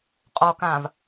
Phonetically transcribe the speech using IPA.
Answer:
qʼ ɔ k ãː v

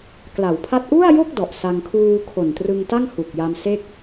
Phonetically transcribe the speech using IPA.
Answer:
k l a˩˦ w pʰ a˥˩ t̚ ʔ u˥˩ a̯ j o˥˩ k̚ d ɔ˨˩ ʔ s a˧ ŋ kʰ uː˧ kʰ o˨˩ n t r ɯ˧ ŋ t a˥˩ ŋ h u˨˩ k̚ j a˧ m s e˥˩ k̚

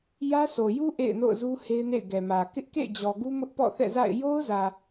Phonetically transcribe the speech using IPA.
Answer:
j ä˦ s o˨ j u˦ ʔ ḛ˦˨ ɪ̯ n o̰˦˨ ʊ̯ z u˦ h e˦ ɪ̯ n ḛ˦˨ ɪ̯ ɡ ɛ˨ m ä˨ k ɪ˦ ʔ k ḛ˦˨ ɪ̯ d͡ʑ ɔ˨ ɡ u˦ m ʊ˦ ʔ p ɔ̰˦˨ θ ɛ̰˦˨ z a̰˦˨ ɪ̯ j o˦ ʊ̯ z ä˨

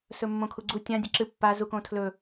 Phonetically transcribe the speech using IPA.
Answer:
s ɵ mː õ kʰ u ɡ͡ǀ u tʲ ã dʲ ɐ ǁ ɨ pː a z u k õ tʰ l ɵ

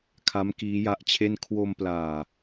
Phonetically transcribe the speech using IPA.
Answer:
kʰ a˦˥ m k iː˦˥ j a˦˥ ʔ t͡ɕʰ e˥˩ n kʰ w o˧ m p l aː˨˩

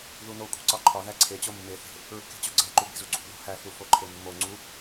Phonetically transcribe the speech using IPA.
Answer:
ð u n o kʷʼ e̤ ǀ ɒ ǃʰ ɒ ð æ ǀʰ e t͡ɕ o mː e θ e̤ | ɹ ṳ k e̤ t͡ɕ o ɡ͡ǀ æ ǃ u b e̤ z u ǀʰ ṳ ð ṳ h æ θ u f o ǃʰ e mː o ŋ͡ǀ u

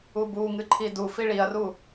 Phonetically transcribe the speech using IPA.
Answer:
u b u ŋ ɨ ǃʰ i d u f i ɭ i ɐ̯ r u

